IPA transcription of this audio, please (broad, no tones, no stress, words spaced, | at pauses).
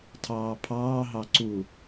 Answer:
tʰɑːpʰɑː ɦɑǀu